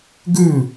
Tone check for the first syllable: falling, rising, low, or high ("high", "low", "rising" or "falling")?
falling